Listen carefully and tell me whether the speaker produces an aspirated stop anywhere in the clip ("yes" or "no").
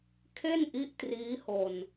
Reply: yes